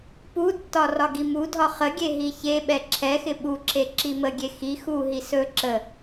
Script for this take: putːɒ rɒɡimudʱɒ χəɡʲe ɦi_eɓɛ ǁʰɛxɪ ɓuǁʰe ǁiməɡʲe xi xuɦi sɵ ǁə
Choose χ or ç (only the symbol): ç